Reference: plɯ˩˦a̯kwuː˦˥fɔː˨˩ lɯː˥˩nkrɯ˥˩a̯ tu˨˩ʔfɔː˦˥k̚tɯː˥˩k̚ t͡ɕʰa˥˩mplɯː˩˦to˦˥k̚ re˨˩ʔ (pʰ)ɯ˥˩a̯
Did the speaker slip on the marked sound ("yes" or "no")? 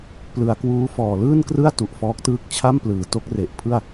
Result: no